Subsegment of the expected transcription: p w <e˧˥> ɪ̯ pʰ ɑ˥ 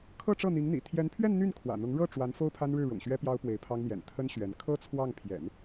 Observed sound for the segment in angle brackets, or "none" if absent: e˧˥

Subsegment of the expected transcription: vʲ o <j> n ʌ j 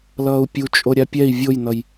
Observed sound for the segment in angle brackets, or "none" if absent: j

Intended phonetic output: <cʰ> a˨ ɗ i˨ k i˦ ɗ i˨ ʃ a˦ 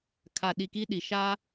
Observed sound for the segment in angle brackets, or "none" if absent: kʰ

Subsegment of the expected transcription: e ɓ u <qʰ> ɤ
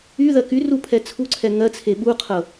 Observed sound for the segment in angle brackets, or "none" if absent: qʰ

